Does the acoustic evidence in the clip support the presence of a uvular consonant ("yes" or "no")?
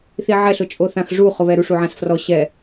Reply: yes